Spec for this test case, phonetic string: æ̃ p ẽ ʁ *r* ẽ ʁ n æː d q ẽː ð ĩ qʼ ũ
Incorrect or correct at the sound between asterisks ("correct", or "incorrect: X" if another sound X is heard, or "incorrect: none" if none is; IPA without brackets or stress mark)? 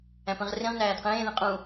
correct